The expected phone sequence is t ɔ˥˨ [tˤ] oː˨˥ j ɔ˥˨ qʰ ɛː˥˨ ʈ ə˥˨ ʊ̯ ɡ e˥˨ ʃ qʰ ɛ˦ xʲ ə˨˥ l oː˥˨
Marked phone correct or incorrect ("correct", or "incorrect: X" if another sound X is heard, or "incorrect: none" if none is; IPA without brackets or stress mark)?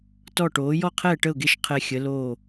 incorrect: ʈ